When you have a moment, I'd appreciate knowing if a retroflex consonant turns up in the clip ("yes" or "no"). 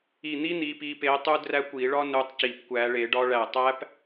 yes